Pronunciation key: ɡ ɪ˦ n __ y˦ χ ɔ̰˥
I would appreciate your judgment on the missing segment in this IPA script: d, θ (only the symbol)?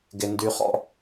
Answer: d